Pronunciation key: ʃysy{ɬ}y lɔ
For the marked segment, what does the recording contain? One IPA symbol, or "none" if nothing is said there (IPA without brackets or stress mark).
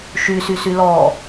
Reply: s